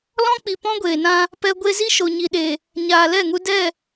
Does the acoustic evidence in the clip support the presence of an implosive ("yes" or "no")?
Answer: yes